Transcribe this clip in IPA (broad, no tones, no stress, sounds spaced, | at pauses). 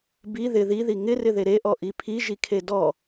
b i ð ɪ ð i ð i ŋ ɪ r ɪ ð e ɾ e ʔ ɔ ʔ i pʰ i ʒ i kʰ e d ɔ